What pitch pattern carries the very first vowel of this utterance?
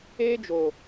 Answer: high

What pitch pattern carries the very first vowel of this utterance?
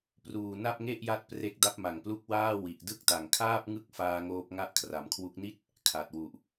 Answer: low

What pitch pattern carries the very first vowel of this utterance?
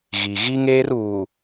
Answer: low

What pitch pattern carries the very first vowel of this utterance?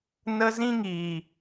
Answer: high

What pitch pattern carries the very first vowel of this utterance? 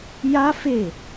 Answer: high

